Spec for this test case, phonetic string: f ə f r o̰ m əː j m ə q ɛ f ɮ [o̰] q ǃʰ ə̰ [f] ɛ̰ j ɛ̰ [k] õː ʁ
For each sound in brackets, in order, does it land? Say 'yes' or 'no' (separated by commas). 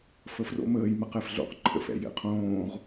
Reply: yes, yes, no